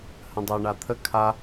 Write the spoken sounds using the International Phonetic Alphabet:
h ə̃ dˤ ɜ ɳ a t̪ʰ ə kʰ a

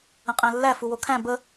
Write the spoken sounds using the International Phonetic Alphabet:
ə̃ qʼ æ̃ lː æ f u w o kʰ æ̃ b ə

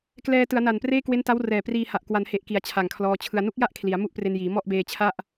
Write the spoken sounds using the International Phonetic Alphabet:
k l ɛː˧ t ɯ˩˦ a̯ n a˨˩ n p r eː˥˩ k w e˦˥ n t a˦˥ w r ɛː˨˩ p r iː˧ h a˨˩ ʔ k w a˩˦ n h e˨˩ ʔ k i˩˦ a̯ t͡ɕʰ a˨˩ ŋ kʰ l ɔː˧ t͡ɕʰ ɯ˧ a̯ n u˦˥ k̚ j a˥˩ ʔ kʰ l i˩˦ a̯ m u˥˩ ʔ p r e˧ n j iː˩˦ m ɔ˥˩ ʔ b eː˧ t͡ɕʰ a˥˩ ʔ

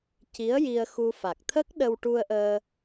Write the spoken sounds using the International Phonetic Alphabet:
c i˧˥ ə̯ j i˧ ə̯ x u˧ f a˨˩ k̚ t̪ʰ ə˦˥ k̚ ɗ ə˧ w ʈ u˧ ə̯ ʔ əː˧

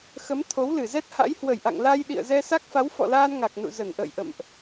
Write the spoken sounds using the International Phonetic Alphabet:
x ə˨˦ m t̪ʰ o˨˦ w l ɨ˧˩ z ɛ˦˥ t̚ h a̰˧˥ j h w ə˧˩ j ʔ a̰˧˨ ŋ l a˧ j ɗ ḭ˧˨ ə̯ z ɛ˧ s a˦˥ k̚ f a˨˦ w f ɔ̰˧˨ l aː˧ n ŋ a˨˩ k̚ n ṵ˧˨ z ə˧˩ n ʔ ə̰ː˧˨ j ʔ ə̰˧˨ m ʔ

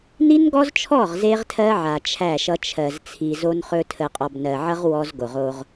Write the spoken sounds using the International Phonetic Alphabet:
n i˦ n ɡ ɔ˦ z t͡ʃʰ ɔ˦˨ ʁ z e˦ ʁ tʰ ɜ˦ ʕ a˨ t͡ʃʰ æ˦˨ ʃ ʌ˦ t͡ʃʰ ɜ˨ z t͡sʰ i˨ z o˦ n χ ɵ˦ tʰ ə˨ qʼ ɔ˨ b n ɜ˨ ʕ ʌ˦ ʁ w ɔ˦ z ɡ o˨ ʁ o˦ ʁ

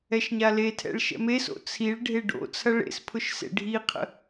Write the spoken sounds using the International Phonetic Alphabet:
ɛ ʃ ɲ a l e tʰ ɛ̰ ɭ ʃ ɛ̰ m e s o̰ t͡sʰ i ɭ ɖʱ e ɖ o̰ t͡sʰ ɐ ɭ ḛ s pʰ ʊ ʃ s ḛ ɖʱ i qʰ ə̰

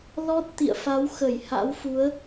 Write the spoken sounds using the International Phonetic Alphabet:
l ɔ˦˥ t̚ t̪ ḭ˧˨ ə̯ f a˨˦ w x ə˧˩ j h a̰˧˥ w f u˨˦ ə̯

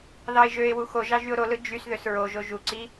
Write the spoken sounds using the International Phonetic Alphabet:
ð ɑ ɪ̯ ʒ ø ɪ̯ w u x o ʒ ɑ ʒ y ʊ̯ ɾ o l ɯ d͡ʒ y s ð ø s ɹ o ʒ o ʒ u ǀ i

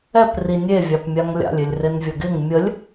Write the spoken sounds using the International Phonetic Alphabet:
ɛ p r i nʲ e vʲ ɑ p mʲ a ŋ lʲ a̰ lʲ ɪ lʲ r ɪ n vʲ ə ɡ ɪ ŋ mʲ ə lʲ

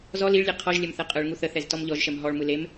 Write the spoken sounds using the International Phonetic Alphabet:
z ɔ l i ɭ lʲ e qʰ ɔ ʒ lʲ ɛ m θ ɛ qʼ ɯ ɭ ŋ u θ ə θ ɛ z t ɔ m ʎ ɔ ʒ ʃ ɛ m ɦ ɔ ɭ m ɯ l e m

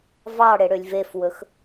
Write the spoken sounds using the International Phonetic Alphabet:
v ɑ ɽ e ɽ ø lʲ v e f w ɵ x

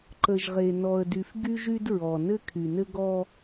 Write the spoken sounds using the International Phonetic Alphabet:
ǃ ə˨ ʒ ʁ e˨ n ɔ˨ ə̯ d y˨ f ɡ y˦ ʒ y˦ d ɹ ɔ˨ n ɘ˦ kʰ y˨ n ɘ˦ ɡ ɔ˦

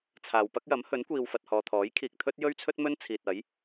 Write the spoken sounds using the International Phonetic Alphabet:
t͡sʰ aː˨ w p ɐ˥ k̚ j ɐ˨˥ m h ɵ˨˥ n kʷ iː˨ w f ɐ˨ t̚ h ɔː˨ t̪ʰ ɔː˨˥ j kʰ iː˨ k̚ t̪ʰ ɵ˥ t̚ j ɵ˥ ɥ t͡sʰ ɵ˥ t̚ m ɵ˥ n t͡sʰ iː˨ t̚ ɐ˨˥ j

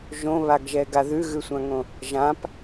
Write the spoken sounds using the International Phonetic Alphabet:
ʒ õ β a ɡ ʒ ɛ ɡ a ð ʉ ɣ ʉ sʷ ã ŋ õ | ʒ ã p

